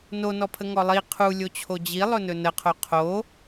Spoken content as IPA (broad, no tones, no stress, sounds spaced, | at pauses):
n o n ɔ pʰ ə ŋ ɔ lˠ i qʰ u lʲ o t͡ɕʰ o d͡ʑ i lˠ ɵ n ɵ n ə qʰ o qʰ o